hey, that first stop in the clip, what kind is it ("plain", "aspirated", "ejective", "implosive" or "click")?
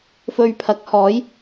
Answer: aspirated